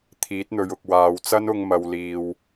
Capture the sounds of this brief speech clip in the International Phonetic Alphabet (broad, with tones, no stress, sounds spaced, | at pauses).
t̪ʰ iː˨˥ t̚ n̪ ɵ˨ ɥ ʊ˨ k̚ w aː˨ w t͡s ɐ˥ n ʊ˧ ŋ m ɐ˨ w l iː˨ w